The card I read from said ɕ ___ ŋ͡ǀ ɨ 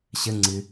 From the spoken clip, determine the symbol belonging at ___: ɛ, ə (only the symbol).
ə